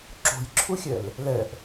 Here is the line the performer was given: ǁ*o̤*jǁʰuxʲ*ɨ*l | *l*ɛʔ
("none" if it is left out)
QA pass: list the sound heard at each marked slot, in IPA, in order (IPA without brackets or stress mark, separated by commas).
o̤, ɛ, l